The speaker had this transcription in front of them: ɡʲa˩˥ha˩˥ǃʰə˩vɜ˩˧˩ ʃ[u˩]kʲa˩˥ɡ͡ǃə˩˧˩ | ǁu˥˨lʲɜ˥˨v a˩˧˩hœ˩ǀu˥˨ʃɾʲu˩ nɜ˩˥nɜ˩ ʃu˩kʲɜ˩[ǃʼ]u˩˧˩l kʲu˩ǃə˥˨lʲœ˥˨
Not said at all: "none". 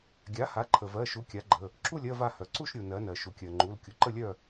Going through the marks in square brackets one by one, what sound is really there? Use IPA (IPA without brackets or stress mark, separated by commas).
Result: u˩˥, ŋ͡ǃ